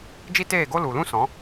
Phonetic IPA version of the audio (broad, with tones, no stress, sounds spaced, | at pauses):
d͡ʒ i˦ t eː˦˨ ɡ o˦ l u˨ l ũ˦ s ɔ̃˨˦